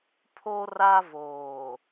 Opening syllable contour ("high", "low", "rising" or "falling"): high